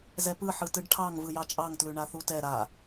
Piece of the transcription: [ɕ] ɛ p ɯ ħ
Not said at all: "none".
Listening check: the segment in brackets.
z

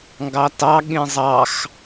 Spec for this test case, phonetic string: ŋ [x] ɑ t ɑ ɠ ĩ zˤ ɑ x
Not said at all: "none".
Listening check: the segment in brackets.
ɡ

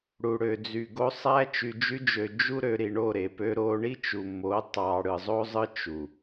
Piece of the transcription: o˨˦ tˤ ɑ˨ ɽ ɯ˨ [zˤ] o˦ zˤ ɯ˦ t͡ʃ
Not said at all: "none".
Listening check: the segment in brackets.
zˤ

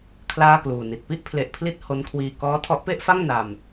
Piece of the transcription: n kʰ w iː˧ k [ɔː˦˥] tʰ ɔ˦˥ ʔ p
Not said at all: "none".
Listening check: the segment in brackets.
ɔː˦˥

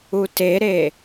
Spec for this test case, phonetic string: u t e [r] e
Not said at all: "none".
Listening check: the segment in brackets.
ɾ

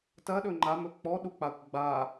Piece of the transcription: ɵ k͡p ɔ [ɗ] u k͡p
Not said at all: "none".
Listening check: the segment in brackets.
ɗ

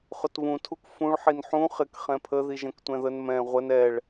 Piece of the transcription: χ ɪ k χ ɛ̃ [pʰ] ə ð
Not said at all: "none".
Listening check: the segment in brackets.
pʰ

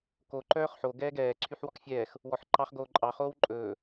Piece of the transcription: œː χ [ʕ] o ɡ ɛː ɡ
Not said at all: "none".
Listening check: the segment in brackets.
ħ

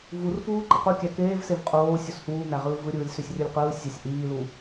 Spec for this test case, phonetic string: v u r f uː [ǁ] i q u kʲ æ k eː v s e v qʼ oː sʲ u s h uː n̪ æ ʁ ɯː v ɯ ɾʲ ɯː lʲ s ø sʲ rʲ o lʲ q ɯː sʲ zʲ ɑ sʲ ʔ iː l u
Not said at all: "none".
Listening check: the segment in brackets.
ǃ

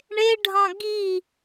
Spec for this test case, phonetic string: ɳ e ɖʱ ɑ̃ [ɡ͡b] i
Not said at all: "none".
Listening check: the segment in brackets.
ɡ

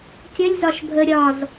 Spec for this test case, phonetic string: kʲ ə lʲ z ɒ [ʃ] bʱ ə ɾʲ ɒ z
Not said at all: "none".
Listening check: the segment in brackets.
ʃ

